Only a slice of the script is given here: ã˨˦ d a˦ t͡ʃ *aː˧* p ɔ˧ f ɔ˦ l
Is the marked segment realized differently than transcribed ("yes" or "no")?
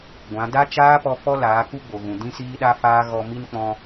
yes